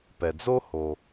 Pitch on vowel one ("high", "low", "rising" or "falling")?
low